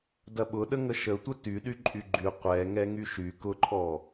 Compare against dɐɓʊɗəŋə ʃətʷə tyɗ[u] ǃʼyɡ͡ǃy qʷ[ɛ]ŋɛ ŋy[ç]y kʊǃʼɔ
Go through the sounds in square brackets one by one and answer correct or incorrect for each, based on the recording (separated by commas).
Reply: incorrect, correct, incorrect